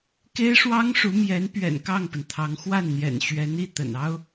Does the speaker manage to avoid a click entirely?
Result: yes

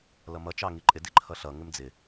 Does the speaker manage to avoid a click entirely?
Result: no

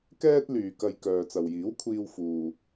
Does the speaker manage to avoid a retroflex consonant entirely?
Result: yes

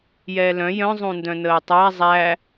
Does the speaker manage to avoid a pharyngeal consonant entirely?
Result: yes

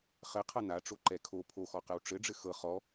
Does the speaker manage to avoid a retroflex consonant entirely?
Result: no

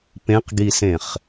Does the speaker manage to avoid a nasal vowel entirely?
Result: no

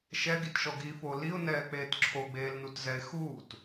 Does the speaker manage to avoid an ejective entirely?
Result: yes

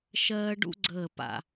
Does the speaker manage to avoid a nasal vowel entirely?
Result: yes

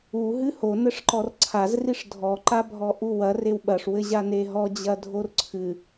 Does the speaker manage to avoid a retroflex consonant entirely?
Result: no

